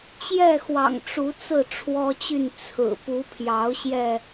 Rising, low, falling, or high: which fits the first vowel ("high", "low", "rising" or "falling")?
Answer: falling